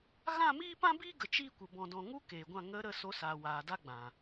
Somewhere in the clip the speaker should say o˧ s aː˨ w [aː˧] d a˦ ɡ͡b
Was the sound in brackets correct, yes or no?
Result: no